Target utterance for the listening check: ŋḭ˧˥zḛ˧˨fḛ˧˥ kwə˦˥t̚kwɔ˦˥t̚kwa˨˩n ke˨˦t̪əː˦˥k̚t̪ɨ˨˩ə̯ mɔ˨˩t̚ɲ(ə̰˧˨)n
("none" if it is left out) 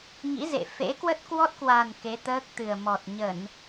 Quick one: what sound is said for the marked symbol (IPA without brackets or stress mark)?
ə˧˩˨